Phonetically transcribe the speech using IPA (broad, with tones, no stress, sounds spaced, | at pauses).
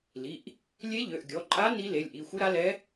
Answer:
l i˩˧˩ ʔ | lʲ e˧˥ ʎ ø˩˧˩ ʔ ɡʲ ɔ˩˧˩ ǃʼ a˧˥ n i˧˥ l e˩˧˩ lʲ ʔ i˩˧˩ xʷ ɯ˧˥ ɾ a˧˥ l ɛ˧˥